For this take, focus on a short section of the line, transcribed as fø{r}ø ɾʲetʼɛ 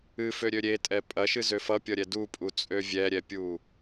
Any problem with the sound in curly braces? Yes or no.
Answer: yes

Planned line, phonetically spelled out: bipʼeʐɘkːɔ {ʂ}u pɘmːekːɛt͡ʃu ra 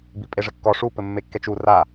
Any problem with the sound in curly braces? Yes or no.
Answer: no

